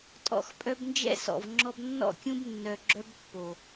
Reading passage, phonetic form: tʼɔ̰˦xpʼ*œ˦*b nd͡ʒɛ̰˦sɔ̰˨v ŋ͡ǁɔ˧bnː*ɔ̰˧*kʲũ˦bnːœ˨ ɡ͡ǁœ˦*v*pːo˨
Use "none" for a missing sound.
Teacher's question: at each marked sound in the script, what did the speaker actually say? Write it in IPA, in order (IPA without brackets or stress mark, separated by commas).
œ˦, ɔ̰˦˨, b